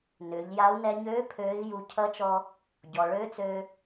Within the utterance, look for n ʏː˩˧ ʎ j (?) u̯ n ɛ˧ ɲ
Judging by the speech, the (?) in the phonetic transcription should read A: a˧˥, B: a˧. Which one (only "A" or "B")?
A